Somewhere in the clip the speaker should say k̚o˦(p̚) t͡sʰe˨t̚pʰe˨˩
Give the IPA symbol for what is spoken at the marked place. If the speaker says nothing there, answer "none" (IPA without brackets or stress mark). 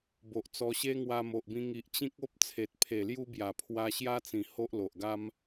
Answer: p̚